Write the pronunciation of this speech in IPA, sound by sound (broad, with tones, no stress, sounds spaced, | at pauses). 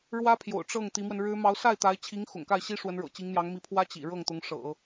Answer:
ɻ w ä˥ pʰ j o̰˨˩ ʊ̯ ʈ͡ʂ ɤ˥˩ ŋ t̪ i˧˥ m w ə˧ n ɻ ɻ̩˥ m ɑ˧˥ ʊ̯ s a˥˩ ɪ̯ t̪ a˧˥ ɪ̯ t͡ɕʰ i˧˥ ŋ x ʊ̰˨˩ ŋ k a˥˩ ɪ̯ ɕ i˥ ʂ w ə˧˥ n ɻ ɤ̰˨˩ t͡ɕ i˧˥ ŋ n̪ j ɑ˧˥ ŋ m i˧˥ pʰ w ä˥ t͡ɕ ḭ˨˩ ɻ ɤ˥˩ ŋ t̪ ʊ˧˥ ŋ ʂ ɤ̰˨˩˦